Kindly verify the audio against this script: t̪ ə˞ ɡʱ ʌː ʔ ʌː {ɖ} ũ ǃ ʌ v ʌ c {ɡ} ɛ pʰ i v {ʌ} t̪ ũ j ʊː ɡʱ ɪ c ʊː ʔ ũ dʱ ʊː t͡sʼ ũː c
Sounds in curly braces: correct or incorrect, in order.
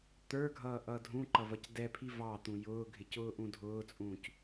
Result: incorrect, incorrect, incorrect

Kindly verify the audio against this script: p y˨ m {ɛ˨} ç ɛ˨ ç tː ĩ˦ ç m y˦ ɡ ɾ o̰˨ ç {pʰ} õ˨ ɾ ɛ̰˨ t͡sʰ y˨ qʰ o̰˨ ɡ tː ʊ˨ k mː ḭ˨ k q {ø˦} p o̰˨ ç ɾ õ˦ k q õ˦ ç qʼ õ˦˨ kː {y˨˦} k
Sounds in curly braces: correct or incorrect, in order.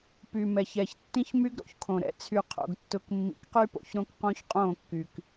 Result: correct, incorrect, incorrect, incorrect

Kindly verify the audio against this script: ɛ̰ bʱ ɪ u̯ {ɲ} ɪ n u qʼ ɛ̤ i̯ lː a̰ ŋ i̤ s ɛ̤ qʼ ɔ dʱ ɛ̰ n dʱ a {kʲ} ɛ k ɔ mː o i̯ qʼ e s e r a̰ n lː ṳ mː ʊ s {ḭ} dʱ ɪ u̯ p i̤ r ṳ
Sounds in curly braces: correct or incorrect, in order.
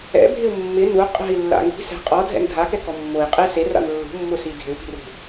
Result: incorrect, incorrect, incorrect

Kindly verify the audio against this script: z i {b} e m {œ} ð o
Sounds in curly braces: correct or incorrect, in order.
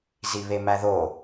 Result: incorrect, incorrect

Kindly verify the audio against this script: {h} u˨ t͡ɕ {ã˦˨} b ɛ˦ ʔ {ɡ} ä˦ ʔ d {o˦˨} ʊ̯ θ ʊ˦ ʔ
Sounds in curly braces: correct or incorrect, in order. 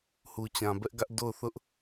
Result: correct, incorrect, correct, correct

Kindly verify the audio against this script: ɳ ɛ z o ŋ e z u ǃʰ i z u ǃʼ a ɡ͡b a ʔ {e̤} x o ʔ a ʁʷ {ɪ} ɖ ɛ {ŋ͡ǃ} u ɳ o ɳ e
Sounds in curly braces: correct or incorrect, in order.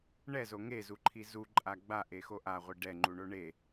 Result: incorrect, incorrect, correct

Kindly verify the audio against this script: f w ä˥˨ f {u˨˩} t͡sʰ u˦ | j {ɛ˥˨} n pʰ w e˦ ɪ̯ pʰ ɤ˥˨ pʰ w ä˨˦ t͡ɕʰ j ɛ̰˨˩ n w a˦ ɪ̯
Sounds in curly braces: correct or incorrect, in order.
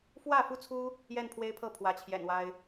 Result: incorrect, correct

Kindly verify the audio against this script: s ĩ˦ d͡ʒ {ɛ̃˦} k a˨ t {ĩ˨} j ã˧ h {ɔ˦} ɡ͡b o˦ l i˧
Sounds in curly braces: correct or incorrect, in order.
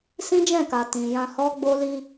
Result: incorrect, correct, correct

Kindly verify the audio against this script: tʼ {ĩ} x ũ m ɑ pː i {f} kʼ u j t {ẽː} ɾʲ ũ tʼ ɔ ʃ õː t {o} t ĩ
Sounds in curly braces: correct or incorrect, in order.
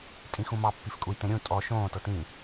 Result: correct, correct, incorrect, incorrect

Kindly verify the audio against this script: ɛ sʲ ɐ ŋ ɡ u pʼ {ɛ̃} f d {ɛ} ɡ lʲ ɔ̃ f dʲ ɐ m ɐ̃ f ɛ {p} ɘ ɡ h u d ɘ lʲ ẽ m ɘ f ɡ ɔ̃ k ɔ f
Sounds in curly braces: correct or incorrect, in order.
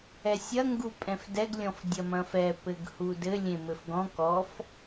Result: correct, correct, correct

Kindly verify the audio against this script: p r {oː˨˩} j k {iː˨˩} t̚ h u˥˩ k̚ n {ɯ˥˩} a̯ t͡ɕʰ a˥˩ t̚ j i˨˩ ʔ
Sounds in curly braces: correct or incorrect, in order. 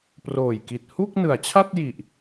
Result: correct, incorrect, incorrect

